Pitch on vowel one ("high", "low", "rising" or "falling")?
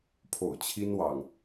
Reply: low